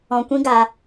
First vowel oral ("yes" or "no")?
no